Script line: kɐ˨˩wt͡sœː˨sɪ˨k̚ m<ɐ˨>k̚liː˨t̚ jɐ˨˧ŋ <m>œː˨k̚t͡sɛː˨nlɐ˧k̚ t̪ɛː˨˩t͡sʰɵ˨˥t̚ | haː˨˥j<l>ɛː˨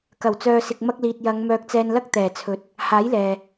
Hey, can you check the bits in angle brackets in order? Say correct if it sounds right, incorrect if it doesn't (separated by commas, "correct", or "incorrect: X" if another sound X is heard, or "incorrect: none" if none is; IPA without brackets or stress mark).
incorrect: ɐ˧, correct, correct